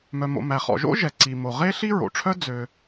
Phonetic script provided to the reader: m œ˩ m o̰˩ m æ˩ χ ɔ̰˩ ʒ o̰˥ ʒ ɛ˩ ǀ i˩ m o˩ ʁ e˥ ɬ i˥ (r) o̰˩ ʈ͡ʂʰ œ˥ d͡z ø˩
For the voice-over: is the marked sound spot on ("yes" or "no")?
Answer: no